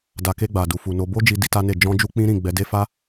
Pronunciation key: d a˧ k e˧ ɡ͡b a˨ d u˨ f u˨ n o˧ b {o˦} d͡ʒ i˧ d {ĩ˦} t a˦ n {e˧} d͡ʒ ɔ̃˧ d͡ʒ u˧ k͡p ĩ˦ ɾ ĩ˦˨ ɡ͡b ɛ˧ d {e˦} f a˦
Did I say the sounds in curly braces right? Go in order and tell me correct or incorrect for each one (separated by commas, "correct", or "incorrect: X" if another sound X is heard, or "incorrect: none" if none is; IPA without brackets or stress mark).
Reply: correct, incorrect: i˦, incorrect: e˦˨, correct